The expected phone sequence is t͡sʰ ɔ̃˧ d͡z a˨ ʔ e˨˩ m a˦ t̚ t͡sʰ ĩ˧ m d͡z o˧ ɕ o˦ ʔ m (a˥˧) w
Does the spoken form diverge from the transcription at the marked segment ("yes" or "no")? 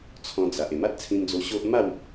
no